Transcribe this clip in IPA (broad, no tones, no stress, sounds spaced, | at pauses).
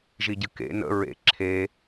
ʒ i ɟ ɨ k ḛ n ə̰ ɹ ḛ ǁʰ e